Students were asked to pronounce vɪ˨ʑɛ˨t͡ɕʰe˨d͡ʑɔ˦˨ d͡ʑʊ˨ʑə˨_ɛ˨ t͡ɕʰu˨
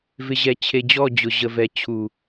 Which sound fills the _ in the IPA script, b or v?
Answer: v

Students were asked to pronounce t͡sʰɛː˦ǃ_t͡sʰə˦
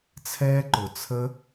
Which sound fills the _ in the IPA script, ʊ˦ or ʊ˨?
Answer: ʊ˨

